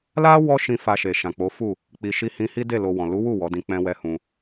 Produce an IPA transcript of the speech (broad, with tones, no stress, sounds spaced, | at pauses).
l a˦ w ɔ˦ ʃ ĩ˧ f a˧ ʃ e˨ ʃ ã˨ k͡p o˨˦ f u˦˨ | k͡p i˨ ʃ i˧ h ĩ˧ h i˦ d e˦˨ l o˧ w ɔ̃˨ l u˨˦ w u˦˨ w ɔ˨˦ d ĩ˧ k͡p ɛ̃˦ w ɛ˦ h ũ˧